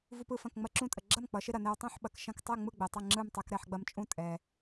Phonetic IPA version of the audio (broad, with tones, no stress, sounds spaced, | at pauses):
v u˧ p ɯ˥˩ f ɐ̃˥˩ k ŋ͡m ɐ˧ ǁ ũ˧ tʼ ə˩ ɡ͡ǁ ɐ˥˩ m k͡p ʌ˩˧ ʃ ɪ˧ ɾ ɐ˩ n ɛ˧ w tˤ ũ˥˩ ħ ɓ ɐ˩˧ k ʃ ɐ̃˧ k tˤ ɛ˥˩ ŋ͡m ɯ˥˩ ɡ͡b ɛ˩ tˤ ɐ˥˩ ŋ͡ǁ ɯ˥˩ m tˤ ɛ˧ k ɾ ɛ˥˩ ħ ɡ͡b ɐ˧ m t͡ʃʼ ũ˥˩ tʼ ɛ˩